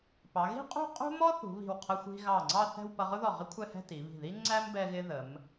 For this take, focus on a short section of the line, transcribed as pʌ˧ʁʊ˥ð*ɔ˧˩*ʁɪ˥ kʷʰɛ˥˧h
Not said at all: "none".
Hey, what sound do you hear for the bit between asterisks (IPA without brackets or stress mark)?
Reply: ɔ˧˩